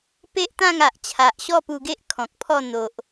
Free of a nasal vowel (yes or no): no